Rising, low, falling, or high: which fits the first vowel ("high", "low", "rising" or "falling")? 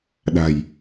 low